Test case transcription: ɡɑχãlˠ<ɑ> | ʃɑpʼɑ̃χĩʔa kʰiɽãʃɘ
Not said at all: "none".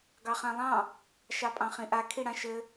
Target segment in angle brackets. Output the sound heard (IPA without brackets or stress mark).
ɑ̃